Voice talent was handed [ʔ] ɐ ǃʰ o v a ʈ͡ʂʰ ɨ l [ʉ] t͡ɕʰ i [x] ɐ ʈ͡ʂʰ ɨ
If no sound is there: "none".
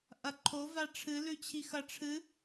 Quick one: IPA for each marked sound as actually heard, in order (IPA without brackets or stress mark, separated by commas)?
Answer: ʔ, ʉ, x